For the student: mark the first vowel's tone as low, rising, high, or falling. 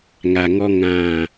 low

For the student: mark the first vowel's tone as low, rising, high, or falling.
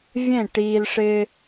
falling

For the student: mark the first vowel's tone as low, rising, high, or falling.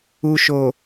low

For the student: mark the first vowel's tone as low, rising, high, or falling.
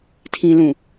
low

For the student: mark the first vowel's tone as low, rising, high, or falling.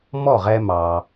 falling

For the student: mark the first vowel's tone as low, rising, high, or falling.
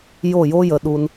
falling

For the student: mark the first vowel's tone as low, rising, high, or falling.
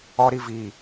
high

